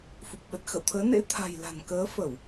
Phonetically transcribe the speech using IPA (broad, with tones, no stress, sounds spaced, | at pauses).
f u˨˩ p̚ ɓ ə˨˩ t̚ x ə̰˧˨ w t̪ʰ əː˨˦ n ḛ˧˥ t̪ʰ a̤˨˩ j l a̤˨˩ n k əː˨˦ f ə˧˩˨ w